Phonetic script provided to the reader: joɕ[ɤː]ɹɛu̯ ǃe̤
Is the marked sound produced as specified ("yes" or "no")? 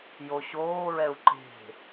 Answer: no